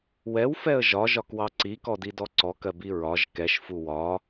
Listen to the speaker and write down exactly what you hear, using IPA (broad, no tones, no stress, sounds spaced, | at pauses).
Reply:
w ɛ w f ɛ ə̯ ʒ ɒ ʒ ɒ k w ɑ ǀ i k ɔ d i d ɔ ǀ ɔ k ɜ b i ɹ ɒ ʒ k ɛ ʃ f u w ɒ